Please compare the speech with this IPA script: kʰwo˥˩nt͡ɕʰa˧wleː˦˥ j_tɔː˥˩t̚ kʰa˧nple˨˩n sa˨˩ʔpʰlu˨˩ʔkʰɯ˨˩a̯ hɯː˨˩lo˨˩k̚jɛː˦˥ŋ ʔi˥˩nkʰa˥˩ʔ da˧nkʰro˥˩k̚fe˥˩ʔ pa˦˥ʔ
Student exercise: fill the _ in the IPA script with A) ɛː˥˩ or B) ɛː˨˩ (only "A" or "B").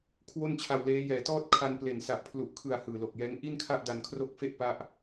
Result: B